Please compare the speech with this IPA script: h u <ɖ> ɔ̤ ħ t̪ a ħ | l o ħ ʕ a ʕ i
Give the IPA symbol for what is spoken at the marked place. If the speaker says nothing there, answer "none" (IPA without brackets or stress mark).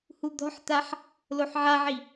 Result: d̪